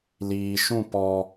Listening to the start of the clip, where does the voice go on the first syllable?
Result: low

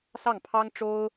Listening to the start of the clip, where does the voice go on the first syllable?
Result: falling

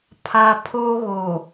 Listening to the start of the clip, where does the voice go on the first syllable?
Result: low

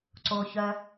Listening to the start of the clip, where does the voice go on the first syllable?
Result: low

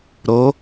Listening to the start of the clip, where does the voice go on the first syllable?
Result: rising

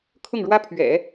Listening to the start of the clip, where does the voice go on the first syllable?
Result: falling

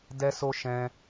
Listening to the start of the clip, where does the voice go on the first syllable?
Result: high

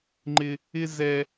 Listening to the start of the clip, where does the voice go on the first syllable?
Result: high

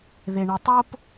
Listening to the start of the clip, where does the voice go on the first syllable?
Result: low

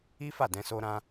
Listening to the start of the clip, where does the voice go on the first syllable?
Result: high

